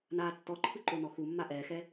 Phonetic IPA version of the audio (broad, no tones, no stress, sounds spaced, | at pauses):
n aː tː ɔ ǃʰ ɯ ǃ o n ɔ x u mː a ʔ ɛː x ɛ